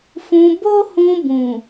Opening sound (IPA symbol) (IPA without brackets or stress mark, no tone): f